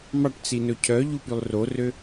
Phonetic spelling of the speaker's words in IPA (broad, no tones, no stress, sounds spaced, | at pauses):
m ɑ ʈ t͡s i n ɵ cʰ œ ʎ u p y lˠ r o r ø